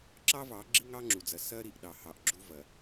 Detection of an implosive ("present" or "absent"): present